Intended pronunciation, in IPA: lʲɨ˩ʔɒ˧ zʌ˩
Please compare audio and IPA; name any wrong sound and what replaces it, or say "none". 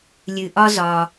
ʌ˩ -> ɒ˩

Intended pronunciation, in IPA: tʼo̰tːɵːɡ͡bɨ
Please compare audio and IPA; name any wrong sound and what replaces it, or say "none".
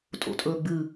tː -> tʼ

